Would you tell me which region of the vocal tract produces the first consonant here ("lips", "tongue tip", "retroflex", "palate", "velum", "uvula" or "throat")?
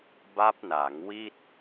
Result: lips